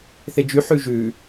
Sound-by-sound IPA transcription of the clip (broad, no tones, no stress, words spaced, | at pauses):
θed͡ʒy ħʉʒʉ